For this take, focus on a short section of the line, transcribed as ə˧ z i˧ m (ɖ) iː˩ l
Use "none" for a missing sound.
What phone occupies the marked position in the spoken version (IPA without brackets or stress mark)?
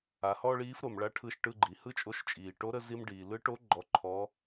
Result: ɖ